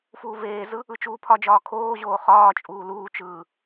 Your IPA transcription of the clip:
f uː v eː z ɯ | ɯ t͡ʃ uː pʰ ɒ d͡ʒ ɒː kʰ oː ʑ oː χ ɒː t͡ʃʼ uː l uː t͡ʃ ɯː

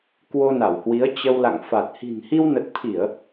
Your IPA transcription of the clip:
k w o˧ n a˧˩ w h w i˨˦ ə̯ t͡ɕ ə˧ w l a̰˧˨ ŋ f a˨˩ t̚ h i̤˨˩ n h i˧ w n ə˨˩ t̚ t̪ʰ i˧˩˨ ə̯

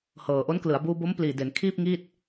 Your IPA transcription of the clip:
h ɤː˨˩ ʔ o˦˥ n k l ɯ˩˦ a̯ b uː˧ b o˦˥ m p l iː˨˩ d e˩˦ n kʰ iː˥˩ p̚ ŋ iː˥˩ t̚

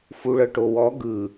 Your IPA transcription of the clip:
f u ɭ ɤ ʈ o w ɔ ɡ ɯ

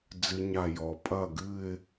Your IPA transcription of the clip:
d͡z ɨ˦˥ ɲ a˥˩ j ɔ˨˦ pʼ ɐ˥˩ ɡ ɨ˥˧ ɪ̯

